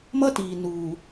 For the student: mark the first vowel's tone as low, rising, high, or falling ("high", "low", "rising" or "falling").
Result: high